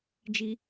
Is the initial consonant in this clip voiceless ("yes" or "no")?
no